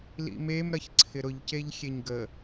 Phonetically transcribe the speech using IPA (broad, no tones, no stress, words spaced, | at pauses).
lḭmem ɾɐçǀʰɪɾʊʎ ceʎxʲeɲɡə